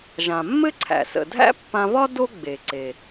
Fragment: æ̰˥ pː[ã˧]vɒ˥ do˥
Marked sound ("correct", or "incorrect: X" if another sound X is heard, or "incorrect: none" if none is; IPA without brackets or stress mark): correct